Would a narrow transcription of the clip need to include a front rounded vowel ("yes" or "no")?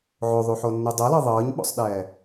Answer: no